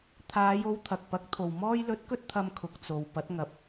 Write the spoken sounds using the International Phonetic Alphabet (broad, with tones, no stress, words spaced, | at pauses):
t̪ʰaː˨˧jo˨˧w t̪ʰɐ˨k̚pɐ˨˥k̚t̪ʰo˨w mɔː˧jlɵ˨˥t̚kɵ˧t̚t̪ʰɐ˨m kʰʊ˨k̚t͡so˨w pɐ˨˥t̚ŋɐ˨˥p̚